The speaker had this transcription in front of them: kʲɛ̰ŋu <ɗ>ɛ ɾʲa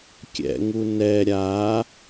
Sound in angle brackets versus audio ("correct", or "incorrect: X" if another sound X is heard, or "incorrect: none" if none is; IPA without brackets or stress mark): incorrect: n